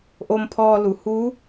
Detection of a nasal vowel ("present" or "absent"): absent